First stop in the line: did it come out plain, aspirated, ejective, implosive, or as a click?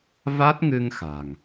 plain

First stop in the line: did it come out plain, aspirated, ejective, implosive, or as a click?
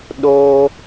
implosive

